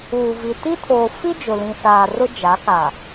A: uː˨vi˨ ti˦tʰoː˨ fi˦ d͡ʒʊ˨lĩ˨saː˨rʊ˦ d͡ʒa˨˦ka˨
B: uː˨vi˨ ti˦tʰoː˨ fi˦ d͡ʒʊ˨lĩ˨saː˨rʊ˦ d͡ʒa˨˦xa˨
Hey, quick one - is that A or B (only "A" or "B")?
A